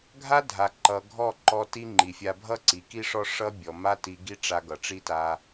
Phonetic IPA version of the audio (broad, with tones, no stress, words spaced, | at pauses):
ɡʱa˦dʱa˨ ǃʌ˨ɡʱɔ˦˨ǃɔ˧ ti˦ŋ͡ǃi˨fʲa˧ bʱʌ˦ǀi˨ ki˦ʂɔ˦ ʂʌ˦bʲɔ˨ ma˦ti˧ɡi˦ ʈ͡ʂa˧ɡʌ˨ʈ͡ʂi˦ta˧